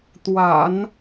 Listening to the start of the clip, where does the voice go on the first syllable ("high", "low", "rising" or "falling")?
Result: low